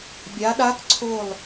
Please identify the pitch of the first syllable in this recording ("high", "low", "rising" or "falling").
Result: rising